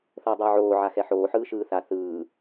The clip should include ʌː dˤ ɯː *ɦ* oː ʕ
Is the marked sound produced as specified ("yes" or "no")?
no